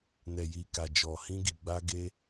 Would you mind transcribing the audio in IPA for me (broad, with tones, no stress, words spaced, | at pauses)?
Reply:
nɛ˨ji˨ka˨ d͡ʒɔ˨hĩ˧ɡi˨ɡ͡ba˧ ɡe˧